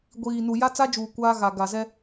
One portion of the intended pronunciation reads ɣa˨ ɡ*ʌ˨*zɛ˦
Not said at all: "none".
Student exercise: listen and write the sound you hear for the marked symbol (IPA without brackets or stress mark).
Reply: a˨